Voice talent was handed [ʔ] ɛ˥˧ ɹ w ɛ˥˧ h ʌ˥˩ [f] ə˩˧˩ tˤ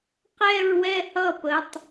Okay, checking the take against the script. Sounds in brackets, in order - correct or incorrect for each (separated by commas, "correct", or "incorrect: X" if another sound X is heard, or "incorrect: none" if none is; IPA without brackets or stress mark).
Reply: incorrect: q, incorrect: p